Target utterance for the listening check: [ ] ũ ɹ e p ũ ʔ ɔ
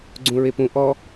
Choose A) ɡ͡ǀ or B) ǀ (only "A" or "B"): A